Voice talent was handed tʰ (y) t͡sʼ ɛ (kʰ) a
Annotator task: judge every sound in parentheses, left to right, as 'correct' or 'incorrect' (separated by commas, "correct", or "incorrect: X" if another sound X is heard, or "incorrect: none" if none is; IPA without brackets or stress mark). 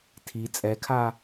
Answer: incorrect: i, correct